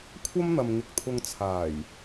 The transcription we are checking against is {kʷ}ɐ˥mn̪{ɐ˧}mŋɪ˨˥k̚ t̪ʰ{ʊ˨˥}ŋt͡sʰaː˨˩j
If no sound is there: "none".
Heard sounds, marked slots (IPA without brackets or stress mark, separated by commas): kʷʰ, ɐ˨, ʊ˧